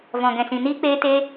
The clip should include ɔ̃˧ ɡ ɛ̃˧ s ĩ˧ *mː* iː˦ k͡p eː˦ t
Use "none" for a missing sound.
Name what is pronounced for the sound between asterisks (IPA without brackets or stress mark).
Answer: n